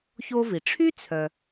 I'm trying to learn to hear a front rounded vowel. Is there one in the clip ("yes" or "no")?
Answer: yes